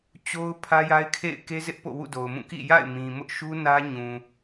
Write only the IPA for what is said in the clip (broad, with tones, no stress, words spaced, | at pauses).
t͡ɕo˦ʊ̯ pʰä˦ja˦ɪ̯kʰḛ˦˨ɪ̯ ke˦zɪ˦ʔ po̰˦˨wṵ˦˨do˨ʊ̯mũ˦˨ kḭ˦˨ja̰˦˨ɪ̯ mĩ˨ mʊ˦ʔʃu˦ nä˦ɲũ˨